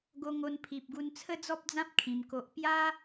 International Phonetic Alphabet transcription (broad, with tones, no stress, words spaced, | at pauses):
ɡo˧ŋo˧npʰi˨p̚ɡu˧n t͡sʰə˦d͡zɔ˦p̚d͡zã˦p̚ kʰĩ˧mko˦ʔ pja˦